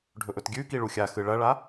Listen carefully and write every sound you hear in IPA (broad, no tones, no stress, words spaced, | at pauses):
ɖʱɵʔɵtɡʲʉki ɭuxʲaxɨ ɭɐɭa